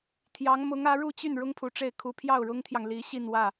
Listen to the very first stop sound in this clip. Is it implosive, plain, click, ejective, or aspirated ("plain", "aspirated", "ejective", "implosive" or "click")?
aspirated